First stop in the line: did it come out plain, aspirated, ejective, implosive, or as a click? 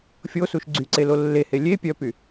click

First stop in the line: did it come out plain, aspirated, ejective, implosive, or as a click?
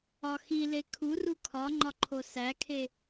aspirated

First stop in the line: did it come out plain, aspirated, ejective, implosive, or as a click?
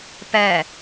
plain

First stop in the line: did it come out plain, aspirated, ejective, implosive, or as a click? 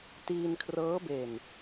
plain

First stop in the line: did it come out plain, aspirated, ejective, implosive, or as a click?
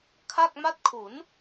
aspirated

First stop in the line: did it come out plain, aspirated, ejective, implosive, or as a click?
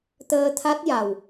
plain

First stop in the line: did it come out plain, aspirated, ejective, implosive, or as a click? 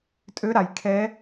ejective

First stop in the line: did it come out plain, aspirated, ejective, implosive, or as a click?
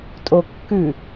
ejective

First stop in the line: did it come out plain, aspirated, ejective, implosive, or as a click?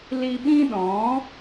implosive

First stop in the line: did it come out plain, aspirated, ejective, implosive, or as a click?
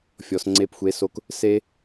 click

